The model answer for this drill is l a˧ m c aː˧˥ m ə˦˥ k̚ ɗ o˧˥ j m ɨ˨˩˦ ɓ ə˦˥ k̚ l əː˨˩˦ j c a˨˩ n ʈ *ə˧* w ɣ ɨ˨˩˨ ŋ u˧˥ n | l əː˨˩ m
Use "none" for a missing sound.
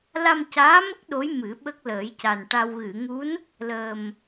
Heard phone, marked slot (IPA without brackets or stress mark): a˧